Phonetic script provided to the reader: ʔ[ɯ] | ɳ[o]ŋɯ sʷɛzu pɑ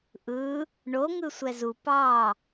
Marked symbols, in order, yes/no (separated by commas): yes, yes